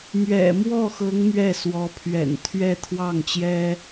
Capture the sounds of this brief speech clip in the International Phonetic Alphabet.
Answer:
m ɥ ɛ̰˨˩ m w ɔ˥˩ x ɤ˧˥ ŋ m ɥ ɛ˥˩ s w ɔ˧˥ pʰ ɥ ɛ̰˨˩ n t̪ʰ ɥ ɛ˥˧ t̪ʰ w ɑ˥˩ ŋ t͡ɕ j ɛ˥

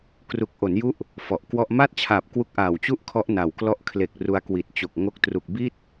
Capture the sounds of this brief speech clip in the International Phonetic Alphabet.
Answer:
k r u˨˩ k̚ ʔ o˩˦ n j u˦˥ ʔ | f ɔ˨˩ ʔ k w ɔ˥˩ ʔ m a˥˩ t̚ t͡ɕʰ aː˨˩ p̚ k w u˦˥ k̚ ʔ aː˨˩ w t͡ɕ u˥˩ ʔ kʰ ɔ˦˥ ʔ n a˨˩ w k l ɔ˦˥ ʔ kʰ l e˨˩ k̚ r u˧ a̯ k w i˨˩ t̚ t͡ɕ o˨˩ k̚ ŋ o˦˥ k̚ t r u˨˩ k̚ b i˥˩ t̚

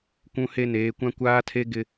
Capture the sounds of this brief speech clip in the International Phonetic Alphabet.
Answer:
kʷ ũ˦ h e˦ n eː˨˦ kʷ ã˦ kʷ aː˦ tʰ e˦ ɡ ɪ˦

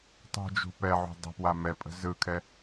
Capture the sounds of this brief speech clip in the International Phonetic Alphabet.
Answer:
tˤ ṳ d͡ʒ ṳ p ɛ ʕ ṳ dˤ ə̤ p w a m ɛ pʼ ə̤ z ɯ kʰ ɛ

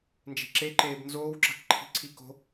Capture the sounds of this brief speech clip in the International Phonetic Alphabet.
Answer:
n d͡ʒ e̤ ǁ e ǃ eː b n z oː w ǁ a̤ k ǃʰ i̤ ǀʰ i k o̤

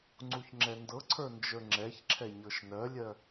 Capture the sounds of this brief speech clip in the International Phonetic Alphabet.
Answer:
ŋ͡ǀ u ç ŋ͡ǁ ɛ n d ɤ ǀʰ ə˞ n d͡ʒ ə˞ ŋ͡ǁ ɛ ç ǁʰ ɛ ɲ ɤ ʃ n ɜ lʲ ɜ

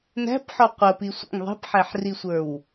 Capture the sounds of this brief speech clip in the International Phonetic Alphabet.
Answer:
n æ̤ p ħ ɔ qʷ ə p i sʷ ə̰ ŋ ðˤ i̤ p ħ æ ħ r i sʷ ə˞ w

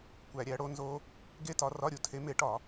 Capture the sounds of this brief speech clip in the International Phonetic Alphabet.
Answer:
kʷ æ˧˩˧ ɾʲ æ˨˦ ɽ o˦˥ n z o˦˥ | ɡ e˦˥ t ɒ˨˦ r ɒ˧˥˧ ɾʲ u˨˦ tʰ e˨˦ m e˨˦ ʈ ɒ˧˩˧

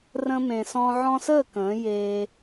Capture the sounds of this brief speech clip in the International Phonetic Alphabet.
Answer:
r ə̃˧ m ẽ˨ s ɔ̃˧ ʕ ɔ̃˧ s əː˦˨ k ə̃ː˨˦ j eː˧

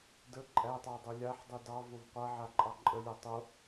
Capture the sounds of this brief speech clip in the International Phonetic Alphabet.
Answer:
d ə ǃʼ æ tˤ ɑ dˤ u lʲ a ħ dˤ u d ɑ v o v qʷ a ʕ a ǃʼ ɑ ǃʼ ə lʲ a tˤ o

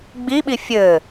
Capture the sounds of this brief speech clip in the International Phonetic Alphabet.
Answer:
ɡ͡b i ɓ i fʲ ɘː

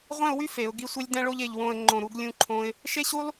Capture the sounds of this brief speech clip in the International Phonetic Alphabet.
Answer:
ʁʷ ɛ̃˥˧ ʊ̯ w y˥ f e˩˧ ʊ̯ ɡ i˥˧ sʷ e˥ lʲ d ɛ̃˥ ɭ o˥ ʎ e˧ ʎ w õ˥˧ ə̯ ŋ͡ǃ õ˧˩ ɾ u˥˧ ɡ lʲ ũ˧ ǃʰ õ˧ ɪ̯ | ʃ e˥ ɕ u˥ lˠ

